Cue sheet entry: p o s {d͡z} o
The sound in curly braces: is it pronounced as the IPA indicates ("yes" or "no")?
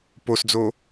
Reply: yes